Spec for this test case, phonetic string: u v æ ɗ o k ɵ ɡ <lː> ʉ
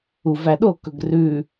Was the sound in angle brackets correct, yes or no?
no